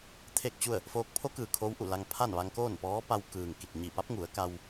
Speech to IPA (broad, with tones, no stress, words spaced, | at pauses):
t̪ʰe˥˨k̚t͡ɕu˥˨ə̯ | foː˧˥k̚ pʰo˧˥kɯː˩ kʰo˧˥wʔu˧˩la˧ŋ pʰa˥˨nʋa˧ŋ koː˥˨npɔː˧˥ pa˧w kɯː˩ŋki˧˩t̚ ɲi˧˩pa˧˥p̚ ŋu˩˧ə̯ ka˧w